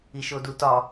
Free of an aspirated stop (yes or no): yes